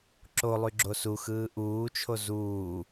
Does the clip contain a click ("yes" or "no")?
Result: yes